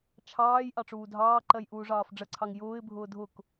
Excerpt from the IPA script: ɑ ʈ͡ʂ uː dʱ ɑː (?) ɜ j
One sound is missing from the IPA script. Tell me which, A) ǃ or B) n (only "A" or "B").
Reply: A